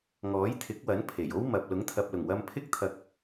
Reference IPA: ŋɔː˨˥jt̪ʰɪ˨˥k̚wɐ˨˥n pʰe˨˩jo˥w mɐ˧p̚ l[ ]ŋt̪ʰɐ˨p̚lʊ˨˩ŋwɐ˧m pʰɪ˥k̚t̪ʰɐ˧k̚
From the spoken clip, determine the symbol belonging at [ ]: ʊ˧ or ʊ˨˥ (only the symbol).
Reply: ʊ˨˥